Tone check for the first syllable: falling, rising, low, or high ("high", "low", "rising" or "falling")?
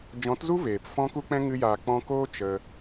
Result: rising